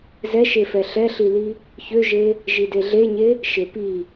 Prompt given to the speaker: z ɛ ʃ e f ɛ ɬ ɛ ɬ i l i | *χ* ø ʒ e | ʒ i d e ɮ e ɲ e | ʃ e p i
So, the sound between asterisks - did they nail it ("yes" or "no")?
no